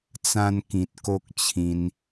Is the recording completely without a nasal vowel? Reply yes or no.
no